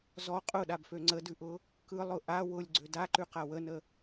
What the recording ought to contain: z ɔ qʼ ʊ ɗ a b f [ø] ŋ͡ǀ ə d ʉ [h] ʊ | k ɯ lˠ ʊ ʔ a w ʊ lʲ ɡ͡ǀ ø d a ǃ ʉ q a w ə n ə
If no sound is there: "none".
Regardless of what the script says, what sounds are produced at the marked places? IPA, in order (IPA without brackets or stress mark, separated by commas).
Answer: ø, ʔ